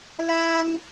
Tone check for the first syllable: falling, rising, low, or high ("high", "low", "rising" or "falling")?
high